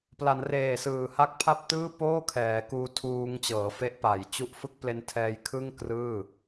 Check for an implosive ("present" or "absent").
absent